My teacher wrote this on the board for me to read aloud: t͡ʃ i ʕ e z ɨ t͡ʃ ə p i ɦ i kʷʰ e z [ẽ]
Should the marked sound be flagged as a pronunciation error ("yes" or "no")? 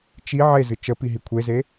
yes